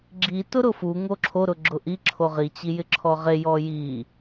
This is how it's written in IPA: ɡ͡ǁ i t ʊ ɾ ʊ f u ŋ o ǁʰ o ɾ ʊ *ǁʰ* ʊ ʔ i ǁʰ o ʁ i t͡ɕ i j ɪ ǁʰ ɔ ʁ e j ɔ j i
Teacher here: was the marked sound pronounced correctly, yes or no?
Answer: no